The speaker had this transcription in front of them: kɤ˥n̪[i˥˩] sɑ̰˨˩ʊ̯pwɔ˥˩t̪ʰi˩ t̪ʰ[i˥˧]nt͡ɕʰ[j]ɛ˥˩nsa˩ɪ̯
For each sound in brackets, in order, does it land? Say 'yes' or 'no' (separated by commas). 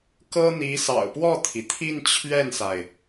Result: no, yes, no